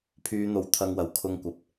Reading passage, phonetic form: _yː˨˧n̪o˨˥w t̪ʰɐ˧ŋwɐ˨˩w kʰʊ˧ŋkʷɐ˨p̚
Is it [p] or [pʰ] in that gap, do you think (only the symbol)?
pʰ